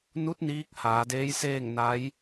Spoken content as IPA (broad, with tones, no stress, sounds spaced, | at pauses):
n u˧˥ t̚ n iː˧˥ k̚ h aː˩˧ d eː˧˥ j s eː˥˨ ŋ n a˧˥ j